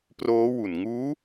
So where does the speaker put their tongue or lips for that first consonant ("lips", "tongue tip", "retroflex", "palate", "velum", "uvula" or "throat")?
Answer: lips